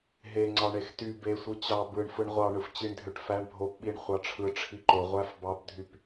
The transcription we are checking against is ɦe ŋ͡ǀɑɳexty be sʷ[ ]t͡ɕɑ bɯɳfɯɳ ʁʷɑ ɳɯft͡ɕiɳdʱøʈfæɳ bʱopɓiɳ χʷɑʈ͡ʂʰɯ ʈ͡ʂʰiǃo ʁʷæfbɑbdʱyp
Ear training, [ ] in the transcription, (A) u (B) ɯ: B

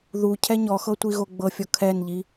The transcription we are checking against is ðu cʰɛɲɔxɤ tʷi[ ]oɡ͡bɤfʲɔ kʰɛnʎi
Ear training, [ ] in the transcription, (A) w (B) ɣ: B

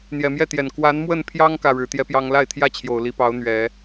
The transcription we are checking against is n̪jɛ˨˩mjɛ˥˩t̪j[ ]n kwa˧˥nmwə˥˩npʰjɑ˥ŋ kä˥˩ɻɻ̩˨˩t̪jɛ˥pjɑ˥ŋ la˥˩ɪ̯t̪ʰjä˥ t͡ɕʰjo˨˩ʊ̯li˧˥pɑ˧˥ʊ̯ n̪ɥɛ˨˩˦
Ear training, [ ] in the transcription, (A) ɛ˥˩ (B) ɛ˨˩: B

